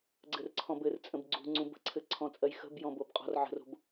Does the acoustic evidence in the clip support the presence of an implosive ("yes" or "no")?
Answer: no